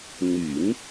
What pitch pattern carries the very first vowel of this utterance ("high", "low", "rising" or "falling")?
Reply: low